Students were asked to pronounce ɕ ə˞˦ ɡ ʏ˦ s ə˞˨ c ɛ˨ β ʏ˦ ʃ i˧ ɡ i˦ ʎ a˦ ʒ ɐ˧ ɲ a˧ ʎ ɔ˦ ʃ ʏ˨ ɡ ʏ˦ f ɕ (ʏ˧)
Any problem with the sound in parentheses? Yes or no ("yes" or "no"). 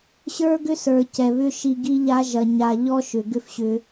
no